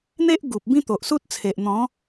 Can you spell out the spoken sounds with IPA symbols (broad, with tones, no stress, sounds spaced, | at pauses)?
n̪ e˦ ʔ ɡ u˨ p̚ b ĩ˦ t̪ o˨ ʔ s u˦ t̚ t͡sʰ e˨ ʔ n̪ ɔ̃˨˦